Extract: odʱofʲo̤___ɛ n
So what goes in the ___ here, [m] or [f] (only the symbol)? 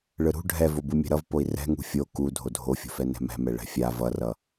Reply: f